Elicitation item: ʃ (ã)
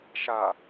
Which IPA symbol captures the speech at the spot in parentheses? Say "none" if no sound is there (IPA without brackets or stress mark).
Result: a